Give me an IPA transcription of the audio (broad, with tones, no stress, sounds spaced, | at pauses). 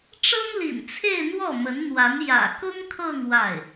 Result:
ʈ͡ʂ ɤ˥ ŋ l ḭ˨˩ n t͡sʰ e˥˧ ɪ̯ n̪ w ɔ˥˩ m ə˧˥ n n̪ w a˧˥ n j ä̰˨˩ k ʊ˥ ŋ kʰ ɤ˥˧ ŋ w a˥˩ ɪ̯